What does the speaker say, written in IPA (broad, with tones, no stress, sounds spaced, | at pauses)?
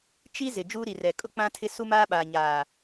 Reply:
t͡ʃ i˦ z ɪ˨ d͡ʒ uː˦ ɾ i˨ r ɛ˨ kʼ ʊ˦ k͡p ã˦ tʰ ɪ˦ s u˦ m aː˦ ɓ aː˨ ɲ aː˨